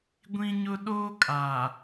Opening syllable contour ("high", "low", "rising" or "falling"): high